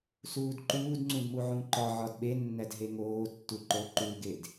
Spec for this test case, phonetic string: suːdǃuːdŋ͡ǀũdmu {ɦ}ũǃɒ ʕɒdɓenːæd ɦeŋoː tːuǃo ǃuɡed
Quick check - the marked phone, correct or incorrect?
incorrect